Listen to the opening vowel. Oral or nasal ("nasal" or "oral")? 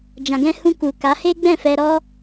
nasal